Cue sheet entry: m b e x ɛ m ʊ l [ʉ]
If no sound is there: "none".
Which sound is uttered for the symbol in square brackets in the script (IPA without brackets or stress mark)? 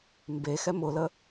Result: ə